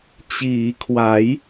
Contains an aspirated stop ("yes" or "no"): yes